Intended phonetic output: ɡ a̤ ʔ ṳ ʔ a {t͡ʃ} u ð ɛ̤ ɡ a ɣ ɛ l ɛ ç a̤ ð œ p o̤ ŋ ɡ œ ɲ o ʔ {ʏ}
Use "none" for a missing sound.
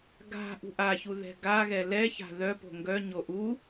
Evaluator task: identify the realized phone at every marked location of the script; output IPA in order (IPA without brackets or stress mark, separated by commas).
ç, u